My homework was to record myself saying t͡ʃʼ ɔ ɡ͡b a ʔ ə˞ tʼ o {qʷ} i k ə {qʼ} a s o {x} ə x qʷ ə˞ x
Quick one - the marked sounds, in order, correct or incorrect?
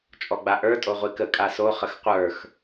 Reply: incorrect: ʁʷ, incorrect: kʼ, incorrect: χ

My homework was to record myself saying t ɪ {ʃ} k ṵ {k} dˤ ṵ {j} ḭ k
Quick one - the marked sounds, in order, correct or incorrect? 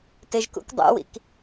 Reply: incorrect: ʒ, correct, incorrect: w

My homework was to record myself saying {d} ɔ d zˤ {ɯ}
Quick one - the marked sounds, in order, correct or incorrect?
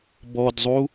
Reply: incorrect: b, incorrect: u

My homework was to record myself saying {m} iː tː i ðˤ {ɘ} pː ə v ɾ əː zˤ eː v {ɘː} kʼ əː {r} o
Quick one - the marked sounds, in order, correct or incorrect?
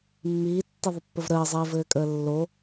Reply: incorrect: mː, correct, correct, incorrect: lː

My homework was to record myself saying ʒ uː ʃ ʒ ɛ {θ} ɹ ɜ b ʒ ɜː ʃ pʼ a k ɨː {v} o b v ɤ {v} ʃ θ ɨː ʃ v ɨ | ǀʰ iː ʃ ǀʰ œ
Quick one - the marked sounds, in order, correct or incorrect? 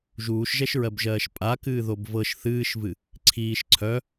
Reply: incorrect: ʃ, incorrect: ð, incorrect: none

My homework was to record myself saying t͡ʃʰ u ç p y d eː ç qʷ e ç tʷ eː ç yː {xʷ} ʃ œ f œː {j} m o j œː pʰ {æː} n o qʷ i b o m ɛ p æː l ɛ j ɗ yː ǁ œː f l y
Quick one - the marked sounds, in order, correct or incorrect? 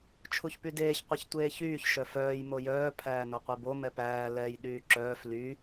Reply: incorrect: ç, correct, correct

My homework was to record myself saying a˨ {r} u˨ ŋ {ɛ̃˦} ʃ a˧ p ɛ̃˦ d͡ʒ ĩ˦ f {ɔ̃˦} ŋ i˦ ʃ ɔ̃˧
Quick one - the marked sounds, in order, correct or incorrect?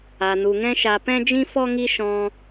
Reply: incorrect: n, correct, incorrect: ɔ˦

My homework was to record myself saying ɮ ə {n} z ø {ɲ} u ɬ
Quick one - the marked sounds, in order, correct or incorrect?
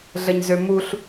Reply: incorrect: ɲ, incorrect: m

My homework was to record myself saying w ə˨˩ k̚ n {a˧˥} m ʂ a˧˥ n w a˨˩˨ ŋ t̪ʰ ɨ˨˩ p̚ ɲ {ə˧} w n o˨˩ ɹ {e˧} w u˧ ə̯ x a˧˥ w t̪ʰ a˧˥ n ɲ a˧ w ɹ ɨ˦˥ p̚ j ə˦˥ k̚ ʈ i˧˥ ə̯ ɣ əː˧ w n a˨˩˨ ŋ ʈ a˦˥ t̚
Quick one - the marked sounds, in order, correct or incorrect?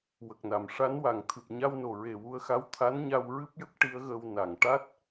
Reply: incorrect: a˨˩˨, incorrect: a˧, incorrect: e˨˩

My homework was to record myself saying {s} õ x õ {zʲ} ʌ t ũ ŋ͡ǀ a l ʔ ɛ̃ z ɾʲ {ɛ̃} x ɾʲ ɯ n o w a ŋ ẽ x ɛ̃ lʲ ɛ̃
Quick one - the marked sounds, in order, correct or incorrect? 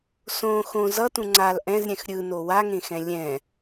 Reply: correct, incorrect: z, correct

